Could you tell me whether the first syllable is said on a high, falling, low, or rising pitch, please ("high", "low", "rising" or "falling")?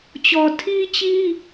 low